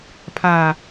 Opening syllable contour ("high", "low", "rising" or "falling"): low